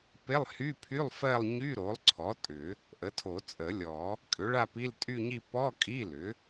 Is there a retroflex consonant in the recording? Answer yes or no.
yes